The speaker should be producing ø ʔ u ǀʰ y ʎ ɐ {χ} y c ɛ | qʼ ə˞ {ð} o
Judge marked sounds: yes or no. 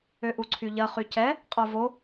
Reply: yes, no

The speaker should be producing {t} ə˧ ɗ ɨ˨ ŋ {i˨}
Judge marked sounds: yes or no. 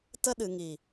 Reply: yes, yes

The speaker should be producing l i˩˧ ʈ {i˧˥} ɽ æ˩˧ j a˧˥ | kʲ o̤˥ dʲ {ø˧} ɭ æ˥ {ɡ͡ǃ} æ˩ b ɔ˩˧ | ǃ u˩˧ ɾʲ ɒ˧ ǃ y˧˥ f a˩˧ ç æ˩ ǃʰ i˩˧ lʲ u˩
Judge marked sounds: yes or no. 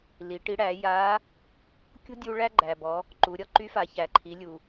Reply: yes, no, yes

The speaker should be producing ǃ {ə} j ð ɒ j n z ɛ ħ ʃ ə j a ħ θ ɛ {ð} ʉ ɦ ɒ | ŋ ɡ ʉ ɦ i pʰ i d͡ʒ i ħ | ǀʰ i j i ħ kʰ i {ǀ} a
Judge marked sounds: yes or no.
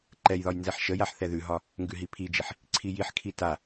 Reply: no, yes, no

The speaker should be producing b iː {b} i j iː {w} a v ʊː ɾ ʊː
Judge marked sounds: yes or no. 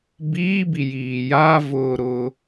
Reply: yes, no

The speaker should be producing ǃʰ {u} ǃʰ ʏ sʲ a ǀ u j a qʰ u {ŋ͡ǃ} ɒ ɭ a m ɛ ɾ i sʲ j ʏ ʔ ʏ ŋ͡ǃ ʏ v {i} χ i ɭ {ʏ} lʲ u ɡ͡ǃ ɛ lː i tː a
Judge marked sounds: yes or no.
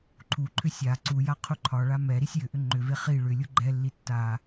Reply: yes, no, no, yes

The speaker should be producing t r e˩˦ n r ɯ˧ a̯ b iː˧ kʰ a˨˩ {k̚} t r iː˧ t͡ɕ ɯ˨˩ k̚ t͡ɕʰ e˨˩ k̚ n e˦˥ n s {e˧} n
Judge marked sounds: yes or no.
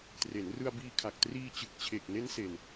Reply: yes, yes

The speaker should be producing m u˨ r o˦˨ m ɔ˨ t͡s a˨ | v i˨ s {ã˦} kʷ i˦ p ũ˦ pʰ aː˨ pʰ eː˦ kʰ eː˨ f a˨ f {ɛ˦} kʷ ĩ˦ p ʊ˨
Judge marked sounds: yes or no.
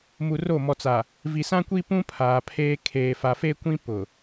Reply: yes, no

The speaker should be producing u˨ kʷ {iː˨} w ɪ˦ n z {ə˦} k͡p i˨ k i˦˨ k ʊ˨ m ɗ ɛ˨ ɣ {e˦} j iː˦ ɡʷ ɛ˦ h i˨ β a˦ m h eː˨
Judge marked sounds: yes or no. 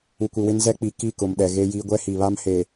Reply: no, no, yes

